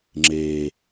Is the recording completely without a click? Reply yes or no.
no